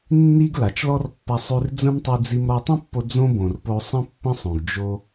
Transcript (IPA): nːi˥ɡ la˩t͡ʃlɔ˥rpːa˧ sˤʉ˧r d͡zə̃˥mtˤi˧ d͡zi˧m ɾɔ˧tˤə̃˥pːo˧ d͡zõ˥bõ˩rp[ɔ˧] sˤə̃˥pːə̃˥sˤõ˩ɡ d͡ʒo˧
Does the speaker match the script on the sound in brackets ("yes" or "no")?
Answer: no